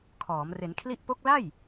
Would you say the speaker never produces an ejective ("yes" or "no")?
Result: yes